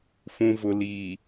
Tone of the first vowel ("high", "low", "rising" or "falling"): low